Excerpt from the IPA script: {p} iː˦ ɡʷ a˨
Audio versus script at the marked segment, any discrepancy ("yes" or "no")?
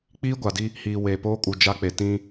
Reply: yes